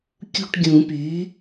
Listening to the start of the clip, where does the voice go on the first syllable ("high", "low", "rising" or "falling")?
falling